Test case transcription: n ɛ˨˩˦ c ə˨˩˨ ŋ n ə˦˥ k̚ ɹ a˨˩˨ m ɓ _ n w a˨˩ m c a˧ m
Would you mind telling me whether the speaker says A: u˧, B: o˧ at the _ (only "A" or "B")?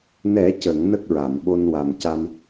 B